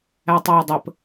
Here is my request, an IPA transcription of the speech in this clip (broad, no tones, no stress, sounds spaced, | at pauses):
æ tˤ æ j dˤ ə p